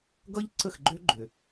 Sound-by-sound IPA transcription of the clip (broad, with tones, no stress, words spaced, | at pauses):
ɡʌ˦ʎǀə˦˨xɡ͡ǃø˦ ɡ͡ǃø˨